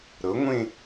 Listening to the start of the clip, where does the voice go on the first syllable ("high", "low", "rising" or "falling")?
rising